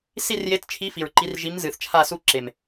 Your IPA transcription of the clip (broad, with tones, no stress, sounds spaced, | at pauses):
s i˦˨ r j e˨˥ t t͡ʃʰ i˨˥ f i˨˩ ɹ ǃ i˨˥ r ʒ i˨˥ m z ɨ˨˩ θ t͡ʃʰ a˦˨ s u˦˨ ǁ e˨˩ m